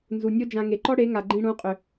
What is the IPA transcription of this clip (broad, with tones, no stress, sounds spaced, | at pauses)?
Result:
n z u˨ nʲ o˦ d͡ʒ ã˧ ŋ e˨ ǃ ɔ˦ ɽ e˨˦ ŋ a˨ ɡ͡ǃ ĩ˧ ɽ ũ˨˦ qʼ ʏ˨